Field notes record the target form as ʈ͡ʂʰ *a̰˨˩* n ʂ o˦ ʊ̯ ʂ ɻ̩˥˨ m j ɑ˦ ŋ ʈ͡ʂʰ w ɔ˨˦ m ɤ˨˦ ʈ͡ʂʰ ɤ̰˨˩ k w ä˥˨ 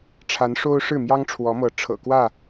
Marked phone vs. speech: incorrect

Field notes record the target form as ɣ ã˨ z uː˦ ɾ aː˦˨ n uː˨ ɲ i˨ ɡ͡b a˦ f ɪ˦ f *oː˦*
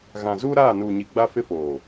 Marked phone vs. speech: incorrect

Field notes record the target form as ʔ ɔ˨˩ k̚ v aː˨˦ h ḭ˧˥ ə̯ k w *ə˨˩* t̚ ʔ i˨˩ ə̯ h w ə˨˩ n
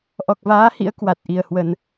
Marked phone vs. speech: incorrect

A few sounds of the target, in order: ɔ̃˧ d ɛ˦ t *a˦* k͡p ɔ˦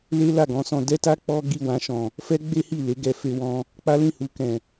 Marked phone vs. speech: correct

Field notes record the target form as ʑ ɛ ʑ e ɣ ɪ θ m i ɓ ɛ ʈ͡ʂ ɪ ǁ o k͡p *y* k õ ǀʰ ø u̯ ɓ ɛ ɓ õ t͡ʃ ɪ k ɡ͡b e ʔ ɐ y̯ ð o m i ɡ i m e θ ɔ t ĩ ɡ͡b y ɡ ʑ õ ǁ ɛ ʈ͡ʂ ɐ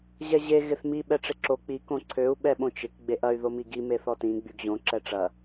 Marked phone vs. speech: incorrect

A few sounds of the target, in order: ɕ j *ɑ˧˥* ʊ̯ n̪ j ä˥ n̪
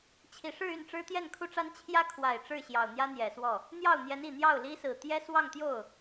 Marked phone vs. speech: incorrect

